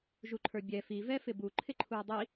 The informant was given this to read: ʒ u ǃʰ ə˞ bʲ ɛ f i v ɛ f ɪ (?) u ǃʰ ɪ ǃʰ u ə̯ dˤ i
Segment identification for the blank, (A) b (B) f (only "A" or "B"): A